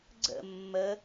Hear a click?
yes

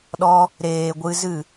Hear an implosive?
yes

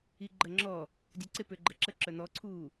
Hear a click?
yes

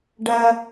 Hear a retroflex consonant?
yes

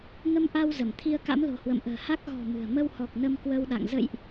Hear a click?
no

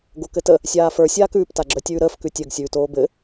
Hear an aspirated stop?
no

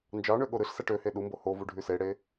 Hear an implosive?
yes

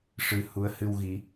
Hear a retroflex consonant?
yes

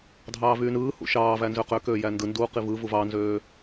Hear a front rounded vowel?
yes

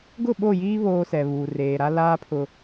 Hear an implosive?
yes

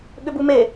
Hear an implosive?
yes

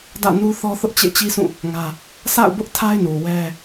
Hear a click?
no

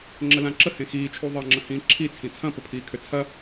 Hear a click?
yes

